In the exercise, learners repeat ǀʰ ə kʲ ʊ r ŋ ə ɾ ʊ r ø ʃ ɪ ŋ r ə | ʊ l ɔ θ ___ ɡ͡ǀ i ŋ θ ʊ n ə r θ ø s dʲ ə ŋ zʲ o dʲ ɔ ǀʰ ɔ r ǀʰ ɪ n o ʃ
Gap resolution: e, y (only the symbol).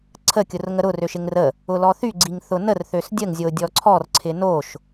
y